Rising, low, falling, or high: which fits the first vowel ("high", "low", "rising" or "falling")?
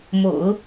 low